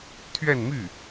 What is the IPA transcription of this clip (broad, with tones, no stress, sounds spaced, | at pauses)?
t̪ʰ ɥ ɛ˥˧ n m y˥˩